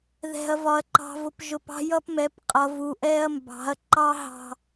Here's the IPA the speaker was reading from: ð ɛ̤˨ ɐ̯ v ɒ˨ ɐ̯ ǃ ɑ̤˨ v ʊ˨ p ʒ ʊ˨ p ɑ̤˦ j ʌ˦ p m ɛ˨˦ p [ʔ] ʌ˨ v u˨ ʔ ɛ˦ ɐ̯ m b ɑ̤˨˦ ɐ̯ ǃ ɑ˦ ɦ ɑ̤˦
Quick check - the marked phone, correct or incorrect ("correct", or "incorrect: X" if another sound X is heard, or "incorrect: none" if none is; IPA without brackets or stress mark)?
incorrect: qʼ